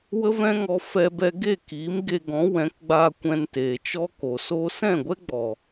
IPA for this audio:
w ə˦ v ɛ̃˦ ŋ ɔ˧ f ɛ˧ b ɛ˧ ɡ e˦˨ k iː˨˦ m ɡ e˧ ɡ ɔ̃˨˦ w ɛ̃˨˦ k ɡ͡b aː˧ kʷ ɛ̃˧ n t eː˨ t͡ʃ ɔ˦ k o˨ s oː˧ s ɛ̃˦˨ ɡʷ ɛ˦ ɡ͡b ɔ˨

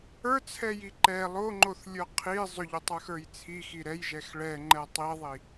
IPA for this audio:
ə˞ t͡sʰ ɛ j i ǃ ɛ lˠ o ŋ͡ǃ o θ lʲ ə˞ qʰ i zˤ ʏ ʎ ʏ tˤ ə˞ x ə˞ j t͡sʰ i x i ɾ ɛ j ʒ ɛ x ɭ ɛ ŋ͡ǃ ɛ tˤ i ðˤ i

